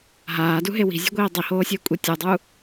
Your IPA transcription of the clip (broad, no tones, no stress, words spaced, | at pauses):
ɦaːduɦe wi̤zʲṳɡʷiː dˤihoːsʲəːkʷʼi tʲudˤu